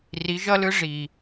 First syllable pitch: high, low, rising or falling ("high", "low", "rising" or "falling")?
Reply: rising